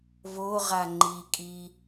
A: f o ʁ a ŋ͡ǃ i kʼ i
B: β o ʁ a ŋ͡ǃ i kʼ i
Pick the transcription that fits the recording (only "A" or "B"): B